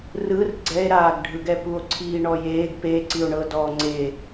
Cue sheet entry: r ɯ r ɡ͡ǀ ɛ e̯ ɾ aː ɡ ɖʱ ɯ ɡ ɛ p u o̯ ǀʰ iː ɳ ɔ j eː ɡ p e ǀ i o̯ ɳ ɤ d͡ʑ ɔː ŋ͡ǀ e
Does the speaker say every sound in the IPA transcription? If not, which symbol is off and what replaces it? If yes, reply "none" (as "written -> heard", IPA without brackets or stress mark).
d͡ʑ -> d